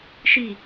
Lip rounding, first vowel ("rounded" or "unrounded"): unrounded